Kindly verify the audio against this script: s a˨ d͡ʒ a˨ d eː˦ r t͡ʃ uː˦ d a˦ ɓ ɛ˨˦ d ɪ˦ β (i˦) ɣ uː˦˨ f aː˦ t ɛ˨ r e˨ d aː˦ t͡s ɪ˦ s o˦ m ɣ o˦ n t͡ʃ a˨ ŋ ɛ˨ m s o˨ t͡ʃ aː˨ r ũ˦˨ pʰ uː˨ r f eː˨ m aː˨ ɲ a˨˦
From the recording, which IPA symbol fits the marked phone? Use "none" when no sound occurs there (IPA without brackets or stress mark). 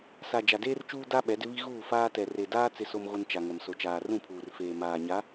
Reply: i˦